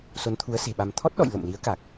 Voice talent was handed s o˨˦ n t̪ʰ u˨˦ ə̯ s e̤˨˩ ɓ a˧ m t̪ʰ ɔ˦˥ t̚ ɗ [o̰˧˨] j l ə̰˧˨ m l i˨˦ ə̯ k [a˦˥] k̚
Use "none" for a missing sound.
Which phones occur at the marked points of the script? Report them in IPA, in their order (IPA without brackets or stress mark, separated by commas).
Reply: ɔ̰˧˨, a˨˩